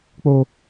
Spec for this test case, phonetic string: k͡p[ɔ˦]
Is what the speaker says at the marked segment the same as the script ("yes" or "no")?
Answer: no